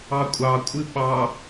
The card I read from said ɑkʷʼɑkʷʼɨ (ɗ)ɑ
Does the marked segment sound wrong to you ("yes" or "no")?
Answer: yes